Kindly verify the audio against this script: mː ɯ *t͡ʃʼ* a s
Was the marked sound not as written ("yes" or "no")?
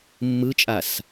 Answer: no